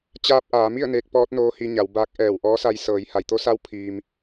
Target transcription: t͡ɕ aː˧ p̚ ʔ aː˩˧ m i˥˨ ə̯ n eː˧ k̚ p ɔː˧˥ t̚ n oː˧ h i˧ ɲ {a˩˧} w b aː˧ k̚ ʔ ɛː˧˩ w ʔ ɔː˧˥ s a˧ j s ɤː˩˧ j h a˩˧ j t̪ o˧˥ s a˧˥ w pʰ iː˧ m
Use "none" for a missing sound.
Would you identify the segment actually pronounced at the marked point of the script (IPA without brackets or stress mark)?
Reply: a˩˧